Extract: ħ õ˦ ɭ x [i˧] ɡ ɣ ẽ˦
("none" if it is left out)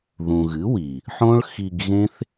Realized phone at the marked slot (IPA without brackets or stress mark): i˧